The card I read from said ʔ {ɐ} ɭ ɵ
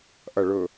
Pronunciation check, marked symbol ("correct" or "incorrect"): correct